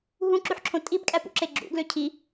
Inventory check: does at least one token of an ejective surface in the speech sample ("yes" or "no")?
yes